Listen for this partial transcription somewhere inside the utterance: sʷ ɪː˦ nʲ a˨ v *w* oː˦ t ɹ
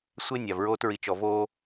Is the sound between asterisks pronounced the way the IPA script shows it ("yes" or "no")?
no